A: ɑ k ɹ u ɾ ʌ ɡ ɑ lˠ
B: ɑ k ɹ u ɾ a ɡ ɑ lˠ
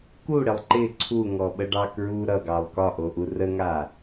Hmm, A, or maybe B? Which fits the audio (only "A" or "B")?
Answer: A